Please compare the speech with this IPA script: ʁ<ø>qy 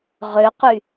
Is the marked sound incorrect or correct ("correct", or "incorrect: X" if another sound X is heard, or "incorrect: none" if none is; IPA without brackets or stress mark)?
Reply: correct